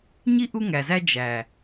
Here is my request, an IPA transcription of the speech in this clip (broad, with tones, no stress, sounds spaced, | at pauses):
ɲ i˦ ʔ u˦ ŋ æ˨ z æ˦ d͡ʒ æ˨